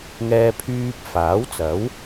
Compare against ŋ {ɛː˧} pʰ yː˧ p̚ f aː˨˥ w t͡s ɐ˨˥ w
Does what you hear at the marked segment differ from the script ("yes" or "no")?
no